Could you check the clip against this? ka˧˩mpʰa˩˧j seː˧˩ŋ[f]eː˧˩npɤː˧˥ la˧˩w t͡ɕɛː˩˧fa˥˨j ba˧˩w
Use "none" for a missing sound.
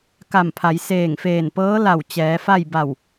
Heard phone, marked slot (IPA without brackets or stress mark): f